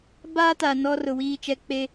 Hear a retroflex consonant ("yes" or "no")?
no